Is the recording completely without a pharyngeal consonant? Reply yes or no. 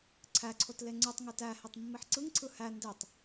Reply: no